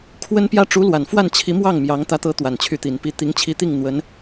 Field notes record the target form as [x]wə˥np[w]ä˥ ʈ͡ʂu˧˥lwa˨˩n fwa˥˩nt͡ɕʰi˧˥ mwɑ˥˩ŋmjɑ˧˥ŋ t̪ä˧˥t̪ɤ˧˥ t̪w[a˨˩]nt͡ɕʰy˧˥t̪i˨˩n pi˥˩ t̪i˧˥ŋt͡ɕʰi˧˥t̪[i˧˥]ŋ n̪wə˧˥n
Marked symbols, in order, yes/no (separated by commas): no, no, yes, no